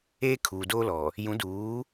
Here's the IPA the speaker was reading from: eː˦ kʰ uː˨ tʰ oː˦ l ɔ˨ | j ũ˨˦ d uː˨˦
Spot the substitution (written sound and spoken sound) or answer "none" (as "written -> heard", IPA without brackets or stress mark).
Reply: tʰ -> d